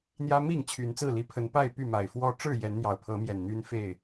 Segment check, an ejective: absent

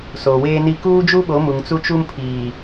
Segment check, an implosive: present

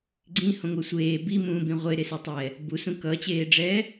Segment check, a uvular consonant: present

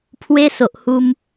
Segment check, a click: absent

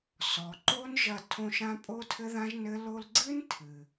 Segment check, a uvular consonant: absent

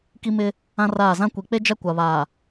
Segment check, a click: absent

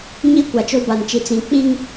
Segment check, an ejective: absent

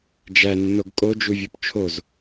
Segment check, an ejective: present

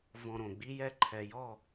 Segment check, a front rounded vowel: absent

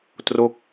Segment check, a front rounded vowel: absent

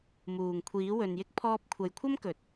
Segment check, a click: absent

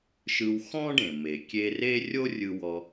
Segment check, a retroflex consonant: present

